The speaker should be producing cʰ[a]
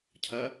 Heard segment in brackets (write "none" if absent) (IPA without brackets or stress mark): ɐ